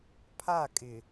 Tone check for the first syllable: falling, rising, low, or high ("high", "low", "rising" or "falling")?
falling